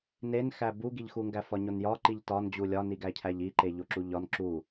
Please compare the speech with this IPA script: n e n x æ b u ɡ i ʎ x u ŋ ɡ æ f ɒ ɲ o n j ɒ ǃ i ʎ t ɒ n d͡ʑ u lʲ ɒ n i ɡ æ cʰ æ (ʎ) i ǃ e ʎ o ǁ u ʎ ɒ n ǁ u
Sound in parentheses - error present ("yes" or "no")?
no